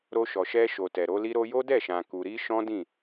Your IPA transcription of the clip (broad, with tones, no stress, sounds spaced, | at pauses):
ɾ o˧ ʃ ɔ˨ ʃ ɛ˧ ʃ o˨ t ɛ˨ ɾ o˨˦ l i˦ ɾ o˧ j o˦ d ɛ˦˨ ʃ ã˨ k u˨ ɾ i˧ ʃ ɔ̃˦ d ĩ˦˨